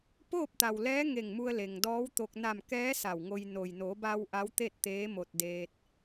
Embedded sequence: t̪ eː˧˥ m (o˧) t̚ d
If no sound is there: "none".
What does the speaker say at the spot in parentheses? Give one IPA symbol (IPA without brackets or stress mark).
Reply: o˧